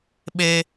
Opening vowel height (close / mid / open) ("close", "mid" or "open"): mid